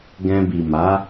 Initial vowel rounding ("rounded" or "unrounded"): unrounded